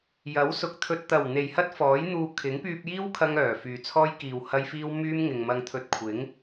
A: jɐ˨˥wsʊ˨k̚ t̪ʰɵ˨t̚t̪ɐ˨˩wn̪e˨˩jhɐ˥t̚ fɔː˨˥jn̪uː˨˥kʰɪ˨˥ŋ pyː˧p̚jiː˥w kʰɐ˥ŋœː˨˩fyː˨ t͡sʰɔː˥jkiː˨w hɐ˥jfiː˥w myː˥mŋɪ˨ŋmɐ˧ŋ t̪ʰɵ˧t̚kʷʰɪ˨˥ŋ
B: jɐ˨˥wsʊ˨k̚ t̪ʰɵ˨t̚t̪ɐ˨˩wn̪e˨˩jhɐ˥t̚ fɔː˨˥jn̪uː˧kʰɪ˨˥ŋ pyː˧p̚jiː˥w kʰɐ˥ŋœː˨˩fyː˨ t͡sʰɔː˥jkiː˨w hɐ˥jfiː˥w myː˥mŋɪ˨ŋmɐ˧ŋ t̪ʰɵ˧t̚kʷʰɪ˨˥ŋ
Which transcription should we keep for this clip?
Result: B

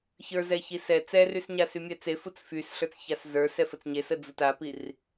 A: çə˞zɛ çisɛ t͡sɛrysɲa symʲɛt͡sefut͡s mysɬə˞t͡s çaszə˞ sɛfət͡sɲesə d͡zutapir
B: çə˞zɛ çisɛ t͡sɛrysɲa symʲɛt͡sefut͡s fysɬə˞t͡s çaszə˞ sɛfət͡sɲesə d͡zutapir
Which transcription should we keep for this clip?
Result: B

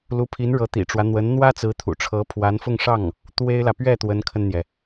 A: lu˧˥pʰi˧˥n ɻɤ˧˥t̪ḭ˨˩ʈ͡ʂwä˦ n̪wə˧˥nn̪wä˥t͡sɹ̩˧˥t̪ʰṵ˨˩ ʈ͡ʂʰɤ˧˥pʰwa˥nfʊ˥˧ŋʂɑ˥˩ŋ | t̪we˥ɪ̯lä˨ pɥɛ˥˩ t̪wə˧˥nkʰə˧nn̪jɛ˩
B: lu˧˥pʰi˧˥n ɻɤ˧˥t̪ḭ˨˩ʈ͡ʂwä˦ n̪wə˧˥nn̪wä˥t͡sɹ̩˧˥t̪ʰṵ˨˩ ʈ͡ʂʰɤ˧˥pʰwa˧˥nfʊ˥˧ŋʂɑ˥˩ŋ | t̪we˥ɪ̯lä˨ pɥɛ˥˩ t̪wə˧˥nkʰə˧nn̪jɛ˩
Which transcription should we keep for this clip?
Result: B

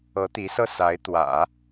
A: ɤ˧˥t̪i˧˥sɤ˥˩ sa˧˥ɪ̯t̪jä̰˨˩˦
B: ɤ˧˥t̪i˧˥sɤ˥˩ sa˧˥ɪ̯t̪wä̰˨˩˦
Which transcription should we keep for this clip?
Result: B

